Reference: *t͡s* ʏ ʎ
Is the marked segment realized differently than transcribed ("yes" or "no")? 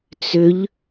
no